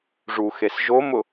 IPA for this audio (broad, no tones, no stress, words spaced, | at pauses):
ʐuxes ʒomʊ